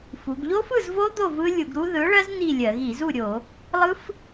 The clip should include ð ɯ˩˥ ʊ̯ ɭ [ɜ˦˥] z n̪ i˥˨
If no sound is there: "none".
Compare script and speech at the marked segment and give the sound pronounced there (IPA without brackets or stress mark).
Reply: ɜ˦˥